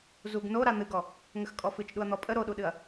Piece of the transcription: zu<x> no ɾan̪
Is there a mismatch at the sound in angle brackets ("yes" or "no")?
yes